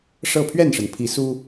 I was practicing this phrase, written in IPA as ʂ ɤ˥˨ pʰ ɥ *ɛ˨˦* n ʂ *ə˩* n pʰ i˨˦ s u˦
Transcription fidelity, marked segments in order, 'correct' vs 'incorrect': incorrect: ɛ˥˨, correct

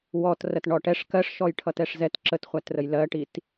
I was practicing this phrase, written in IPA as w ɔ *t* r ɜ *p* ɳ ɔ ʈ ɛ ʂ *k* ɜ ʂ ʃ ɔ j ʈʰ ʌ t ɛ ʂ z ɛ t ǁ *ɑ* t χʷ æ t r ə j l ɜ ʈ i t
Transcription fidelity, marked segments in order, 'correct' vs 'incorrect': correct, incorrect: t, correct, incorrect: ə

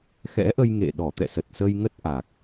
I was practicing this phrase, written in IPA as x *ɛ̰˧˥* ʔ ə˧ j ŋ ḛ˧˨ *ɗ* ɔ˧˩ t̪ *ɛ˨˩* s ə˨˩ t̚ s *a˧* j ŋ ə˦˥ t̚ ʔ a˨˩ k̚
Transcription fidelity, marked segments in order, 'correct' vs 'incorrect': correct, correct, incorrect: ɛ̰˧˨, incorrect: ə˧

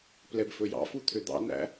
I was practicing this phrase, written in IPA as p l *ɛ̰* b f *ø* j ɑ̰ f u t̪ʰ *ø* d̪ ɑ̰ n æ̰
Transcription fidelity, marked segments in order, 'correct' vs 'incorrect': incorrect: ɛ, incorrect: ɵ, correct

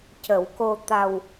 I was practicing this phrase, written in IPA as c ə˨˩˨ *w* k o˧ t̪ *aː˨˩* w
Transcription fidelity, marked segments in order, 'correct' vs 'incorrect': correct, incorrect: a˨˩

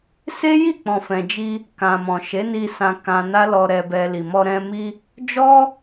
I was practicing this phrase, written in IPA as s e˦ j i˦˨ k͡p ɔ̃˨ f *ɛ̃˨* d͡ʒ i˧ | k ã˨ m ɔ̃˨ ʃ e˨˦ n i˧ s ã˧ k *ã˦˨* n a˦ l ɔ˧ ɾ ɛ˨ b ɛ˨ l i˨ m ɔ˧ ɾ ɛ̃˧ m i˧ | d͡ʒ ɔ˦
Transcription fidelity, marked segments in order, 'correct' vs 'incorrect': correct, incorrect: ã˧

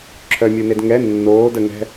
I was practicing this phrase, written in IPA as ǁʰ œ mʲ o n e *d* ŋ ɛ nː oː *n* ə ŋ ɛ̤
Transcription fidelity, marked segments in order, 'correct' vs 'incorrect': correct, incorrect: d

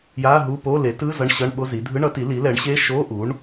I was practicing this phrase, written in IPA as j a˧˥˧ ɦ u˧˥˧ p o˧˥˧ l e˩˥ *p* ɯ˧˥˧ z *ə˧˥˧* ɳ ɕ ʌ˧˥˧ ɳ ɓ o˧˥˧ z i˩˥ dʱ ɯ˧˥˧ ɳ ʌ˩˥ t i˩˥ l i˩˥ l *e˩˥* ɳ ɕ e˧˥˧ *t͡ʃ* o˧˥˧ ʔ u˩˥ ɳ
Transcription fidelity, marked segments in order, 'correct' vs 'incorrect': incorrect: t, incorrect: ʌ˧˥˧, incorrect: ɛ˩˥, incorrect: ʃ

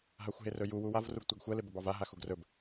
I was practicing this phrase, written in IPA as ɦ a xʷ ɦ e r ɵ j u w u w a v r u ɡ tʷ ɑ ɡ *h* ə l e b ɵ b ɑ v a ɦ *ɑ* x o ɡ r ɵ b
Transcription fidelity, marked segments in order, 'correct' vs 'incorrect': incorrect: xʷ, incorrect: a

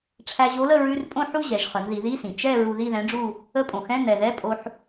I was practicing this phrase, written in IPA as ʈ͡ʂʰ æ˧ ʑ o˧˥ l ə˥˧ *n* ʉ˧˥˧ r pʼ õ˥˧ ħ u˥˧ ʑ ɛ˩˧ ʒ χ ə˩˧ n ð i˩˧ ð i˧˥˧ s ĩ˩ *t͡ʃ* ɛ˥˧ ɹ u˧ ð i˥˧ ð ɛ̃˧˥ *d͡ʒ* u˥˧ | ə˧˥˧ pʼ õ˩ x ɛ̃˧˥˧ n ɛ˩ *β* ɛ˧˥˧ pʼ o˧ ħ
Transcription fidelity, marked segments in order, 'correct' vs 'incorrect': incorrect: ɹ, correct, incorrect: ɖ͡ʐ, incorrect: ð

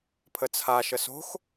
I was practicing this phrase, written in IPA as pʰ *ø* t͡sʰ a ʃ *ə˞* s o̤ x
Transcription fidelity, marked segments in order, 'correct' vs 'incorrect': incorrect: ə, incorrect: ə

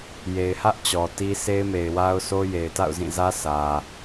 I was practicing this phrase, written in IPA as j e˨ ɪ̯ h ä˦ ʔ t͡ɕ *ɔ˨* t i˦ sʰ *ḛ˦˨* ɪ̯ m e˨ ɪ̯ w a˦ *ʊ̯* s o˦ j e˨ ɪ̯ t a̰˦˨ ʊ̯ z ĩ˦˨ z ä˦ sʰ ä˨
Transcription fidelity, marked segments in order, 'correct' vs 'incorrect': correct, incorrect: e˦, correct

